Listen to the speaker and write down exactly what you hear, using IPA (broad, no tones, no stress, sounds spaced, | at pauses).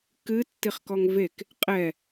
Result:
k ɨ tː i χ k ɔ ŋ v e k | qʼ ɛ